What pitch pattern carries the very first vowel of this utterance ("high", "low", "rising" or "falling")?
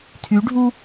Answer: rising